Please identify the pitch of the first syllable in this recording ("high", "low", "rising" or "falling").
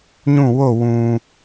falling